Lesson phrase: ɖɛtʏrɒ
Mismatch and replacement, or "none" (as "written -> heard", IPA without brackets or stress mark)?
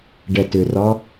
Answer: none